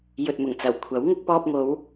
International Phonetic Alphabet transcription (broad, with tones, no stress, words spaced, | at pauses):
jɵ˨t̚mʊ˨˩ŋt͡sɐ˨˩wkʷʰɐ˨˥w ŋʊ˧k̚pɔː˧p̚ŋo˨˧w